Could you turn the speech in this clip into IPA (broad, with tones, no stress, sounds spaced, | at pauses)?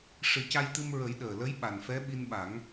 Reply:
ʂ ɨ˨˩˦ c a˧ j t̪ ɨ˧ m ɹ ə˨˩˦ j ɗ əː˨˩ l ə˧˥ j ɓ a˨˩ n f ɛ˧˥ ɓ i˧ n ɓ a˨˩˦ ŋ